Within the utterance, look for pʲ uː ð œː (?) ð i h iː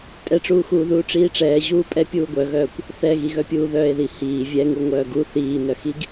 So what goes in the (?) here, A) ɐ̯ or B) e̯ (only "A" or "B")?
B